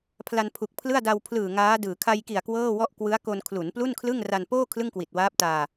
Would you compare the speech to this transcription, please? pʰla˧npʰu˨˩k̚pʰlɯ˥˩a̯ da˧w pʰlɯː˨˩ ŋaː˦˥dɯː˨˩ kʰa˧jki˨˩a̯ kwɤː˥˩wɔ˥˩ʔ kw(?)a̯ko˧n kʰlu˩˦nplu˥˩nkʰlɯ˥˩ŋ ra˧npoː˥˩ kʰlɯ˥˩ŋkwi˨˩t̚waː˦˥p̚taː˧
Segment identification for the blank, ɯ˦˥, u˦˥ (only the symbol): ɯ˦˥